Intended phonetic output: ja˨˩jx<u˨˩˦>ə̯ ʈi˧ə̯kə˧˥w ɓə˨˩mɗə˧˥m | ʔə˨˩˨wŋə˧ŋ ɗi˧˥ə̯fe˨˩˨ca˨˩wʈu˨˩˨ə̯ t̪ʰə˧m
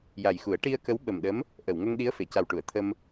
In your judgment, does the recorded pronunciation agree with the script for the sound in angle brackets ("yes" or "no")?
yes